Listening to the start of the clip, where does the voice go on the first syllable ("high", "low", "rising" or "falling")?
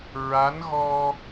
rising